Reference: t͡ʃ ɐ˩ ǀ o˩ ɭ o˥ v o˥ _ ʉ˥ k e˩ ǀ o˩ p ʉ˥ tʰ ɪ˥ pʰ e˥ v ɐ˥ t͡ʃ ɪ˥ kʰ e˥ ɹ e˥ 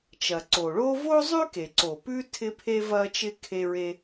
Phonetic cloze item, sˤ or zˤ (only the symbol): zˤ